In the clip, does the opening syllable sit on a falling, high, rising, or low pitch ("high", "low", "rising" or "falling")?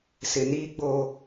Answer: low